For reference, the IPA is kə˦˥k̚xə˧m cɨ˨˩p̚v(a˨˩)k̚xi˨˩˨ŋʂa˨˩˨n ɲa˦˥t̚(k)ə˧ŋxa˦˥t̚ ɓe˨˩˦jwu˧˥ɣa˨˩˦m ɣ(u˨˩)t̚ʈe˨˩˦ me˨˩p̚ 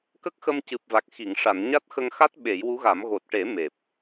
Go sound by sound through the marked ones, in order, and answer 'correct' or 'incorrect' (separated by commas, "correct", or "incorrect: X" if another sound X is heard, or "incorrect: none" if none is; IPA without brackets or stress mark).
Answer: correct, incorrect: x, incorrect: o˨˩